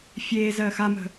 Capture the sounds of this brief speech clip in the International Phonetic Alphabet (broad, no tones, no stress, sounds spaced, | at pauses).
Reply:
fʲ eː z ɜː x a m ə̤